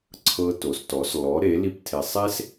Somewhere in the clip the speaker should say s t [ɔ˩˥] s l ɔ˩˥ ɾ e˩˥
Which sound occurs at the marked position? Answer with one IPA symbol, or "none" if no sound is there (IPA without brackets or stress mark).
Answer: ɔ˩˥